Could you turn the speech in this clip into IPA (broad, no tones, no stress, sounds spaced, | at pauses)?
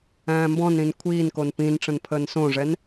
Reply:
æ̃ː m b ɔ̃ n ɾ ĩ n kʷʰ iː n k o n p ĩ n ʈ͡ʂ ə̃ n pʰ əː n s õ ʐ ɛ n